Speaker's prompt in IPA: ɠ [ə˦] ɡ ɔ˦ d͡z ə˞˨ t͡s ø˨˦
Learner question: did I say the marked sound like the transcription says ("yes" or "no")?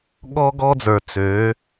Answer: no